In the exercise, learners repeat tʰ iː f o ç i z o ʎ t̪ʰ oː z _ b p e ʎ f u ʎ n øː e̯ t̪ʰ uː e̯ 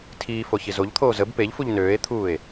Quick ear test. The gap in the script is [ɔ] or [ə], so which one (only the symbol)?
ə